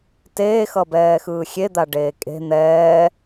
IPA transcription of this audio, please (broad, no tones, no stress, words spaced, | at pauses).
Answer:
teːxʌbɛːxɯː xʲed̪aɖeː kʼe̤ n̪ɛː